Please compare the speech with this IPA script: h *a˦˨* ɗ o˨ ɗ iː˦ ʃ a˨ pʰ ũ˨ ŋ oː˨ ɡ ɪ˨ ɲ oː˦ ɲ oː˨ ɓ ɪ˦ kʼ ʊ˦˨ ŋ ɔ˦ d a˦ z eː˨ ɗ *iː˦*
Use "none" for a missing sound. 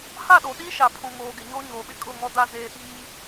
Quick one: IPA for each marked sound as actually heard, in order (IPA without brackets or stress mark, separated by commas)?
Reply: a˦˨, iː˦